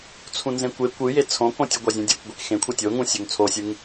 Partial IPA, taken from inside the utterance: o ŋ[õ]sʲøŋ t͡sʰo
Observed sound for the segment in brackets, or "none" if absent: ũ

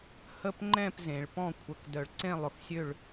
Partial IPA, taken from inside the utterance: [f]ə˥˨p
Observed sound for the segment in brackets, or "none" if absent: h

